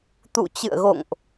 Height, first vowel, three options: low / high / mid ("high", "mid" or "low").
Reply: high